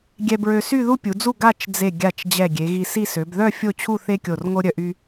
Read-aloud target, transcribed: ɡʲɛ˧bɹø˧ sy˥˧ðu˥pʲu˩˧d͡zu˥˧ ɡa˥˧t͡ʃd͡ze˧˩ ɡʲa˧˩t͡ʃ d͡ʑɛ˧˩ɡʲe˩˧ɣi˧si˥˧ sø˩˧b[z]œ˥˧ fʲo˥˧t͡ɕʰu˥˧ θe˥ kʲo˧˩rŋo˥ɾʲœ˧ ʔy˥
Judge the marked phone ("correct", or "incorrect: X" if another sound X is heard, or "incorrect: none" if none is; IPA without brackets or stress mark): incorrect: ð